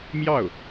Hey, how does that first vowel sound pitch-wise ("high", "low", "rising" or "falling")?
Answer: falling